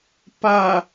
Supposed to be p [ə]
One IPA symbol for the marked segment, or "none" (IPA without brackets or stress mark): a